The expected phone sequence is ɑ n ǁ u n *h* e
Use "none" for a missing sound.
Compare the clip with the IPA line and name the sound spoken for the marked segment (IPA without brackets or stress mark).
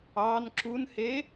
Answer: h